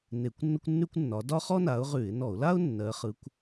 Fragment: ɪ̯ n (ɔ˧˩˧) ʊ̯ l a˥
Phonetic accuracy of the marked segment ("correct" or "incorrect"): correct